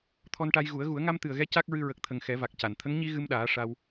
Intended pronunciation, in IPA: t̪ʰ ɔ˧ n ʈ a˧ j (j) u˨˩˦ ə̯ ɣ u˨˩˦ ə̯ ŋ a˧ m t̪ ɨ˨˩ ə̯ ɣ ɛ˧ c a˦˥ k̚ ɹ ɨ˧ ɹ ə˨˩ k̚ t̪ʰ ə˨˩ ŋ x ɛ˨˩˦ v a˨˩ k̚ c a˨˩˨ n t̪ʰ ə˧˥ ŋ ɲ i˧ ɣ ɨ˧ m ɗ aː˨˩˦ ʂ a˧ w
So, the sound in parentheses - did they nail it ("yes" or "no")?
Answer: no